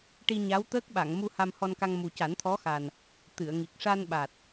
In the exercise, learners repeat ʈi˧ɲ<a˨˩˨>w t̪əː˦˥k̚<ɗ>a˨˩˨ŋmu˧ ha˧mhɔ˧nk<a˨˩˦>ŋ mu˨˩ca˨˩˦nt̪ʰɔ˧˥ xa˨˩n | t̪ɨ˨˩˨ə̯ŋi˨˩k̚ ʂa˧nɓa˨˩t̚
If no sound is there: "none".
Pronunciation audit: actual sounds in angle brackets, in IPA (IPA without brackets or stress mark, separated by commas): a˧˥, ɓ, a˧